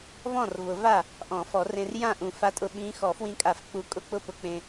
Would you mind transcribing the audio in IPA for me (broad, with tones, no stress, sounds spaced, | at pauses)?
v ɔ̃˥˩ r v ʊ˨˩˦ v a˥˩ | ʔ ɔ̃˨˩˦ f ɔ˨˩˦ r ẽ˧ r j ã˥˩ ʔ ũ˨˩˦ f a˧˥ tʼ ʊ˧ ɓ ĩ˧˥ x ɔ˨˩˦ f w ĩ˧ kʼ a˨˩˦ f k͡p u˨˩˦ kʼ ʊ˥˩ k͡p ʊ˥˩ p ʊ˧ k͡p ẽ˧